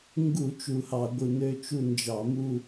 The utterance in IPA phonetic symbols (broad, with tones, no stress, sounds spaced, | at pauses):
ŋ ɡ u˧˩˧ t͡ʃ u˧˩ h ɑ˧˩˧ ɡʷ ɯ˧˩ n̪ ø˥˧ t͡ʃ u˥˧ n d͡ʒ ɑ˧˩˧ m u˥˧